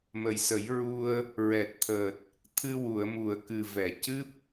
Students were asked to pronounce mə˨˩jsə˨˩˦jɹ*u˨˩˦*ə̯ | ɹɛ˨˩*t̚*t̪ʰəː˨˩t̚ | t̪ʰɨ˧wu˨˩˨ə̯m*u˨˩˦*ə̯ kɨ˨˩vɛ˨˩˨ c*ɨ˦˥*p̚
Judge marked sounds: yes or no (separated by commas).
no, yes, no, yes